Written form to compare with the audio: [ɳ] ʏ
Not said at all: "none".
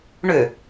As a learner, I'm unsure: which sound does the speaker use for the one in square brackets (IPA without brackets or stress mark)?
ɳ